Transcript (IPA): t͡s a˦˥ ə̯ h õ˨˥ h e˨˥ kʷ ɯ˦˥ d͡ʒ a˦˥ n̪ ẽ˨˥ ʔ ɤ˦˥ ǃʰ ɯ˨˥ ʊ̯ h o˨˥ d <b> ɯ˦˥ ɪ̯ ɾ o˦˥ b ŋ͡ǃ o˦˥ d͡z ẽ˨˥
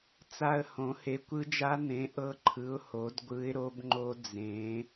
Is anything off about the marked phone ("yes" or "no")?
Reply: yes